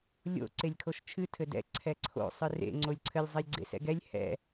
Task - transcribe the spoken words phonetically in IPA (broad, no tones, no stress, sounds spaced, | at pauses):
lʲ o̰ ǀ e lʲ kʰ o ʃ t͡ʃʰ ɨ tʰ ɘ d ɛ̰ ǀʰ ɛ ǀʰ o̰ sˤ ɨ r ḛ ŋ͡ǀ o lʲ ǀʰ ɘ lʲ zˤ ɛ lʲ ɡ͡ǀ ḛ s ɛ̰ ɡ ɛ lʲ h ɛ̰